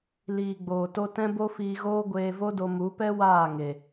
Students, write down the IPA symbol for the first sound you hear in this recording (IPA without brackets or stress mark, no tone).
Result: l